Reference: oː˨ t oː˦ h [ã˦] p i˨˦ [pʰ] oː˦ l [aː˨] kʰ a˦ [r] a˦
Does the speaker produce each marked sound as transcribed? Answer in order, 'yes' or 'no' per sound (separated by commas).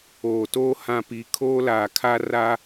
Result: yes, no, yes, yes